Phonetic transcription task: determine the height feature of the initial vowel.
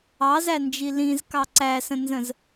low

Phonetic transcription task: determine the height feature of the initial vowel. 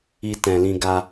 high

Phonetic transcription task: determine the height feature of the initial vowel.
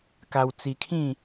low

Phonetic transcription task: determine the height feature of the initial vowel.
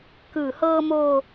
high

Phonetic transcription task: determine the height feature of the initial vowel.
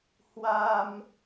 low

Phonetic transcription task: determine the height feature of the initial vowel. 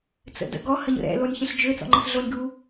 mid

